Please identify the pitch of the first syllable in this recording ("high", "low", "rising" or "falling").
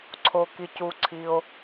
low